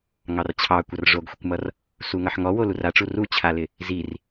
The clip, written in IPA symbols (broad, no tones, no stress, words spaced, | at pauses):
ŋɑrt͡ɕʰɑ kʷʌrʐoɡxʷɪkʷmʌr | suŋʌħŋɔ woluraʈ͡ʂu rut͡ɕʰalɪ | zir